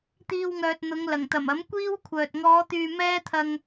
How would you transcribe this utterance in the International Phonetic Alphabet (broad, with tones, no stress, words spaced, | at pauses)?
t̪iː˧wŋœː˨t̚ n̪ʊ˨˧ŋlɐ˨˩ŋt̪ɐ˨˩m ɐ˨˥mkʷiː˥wkʷʰœː˨t̚ ŋɔː˨˧t̪yː˨ mɛː˥t̪ʰɐ˧ŋ